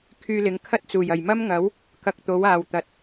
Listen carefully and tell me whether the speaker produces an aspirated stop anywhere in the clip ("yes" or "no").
yes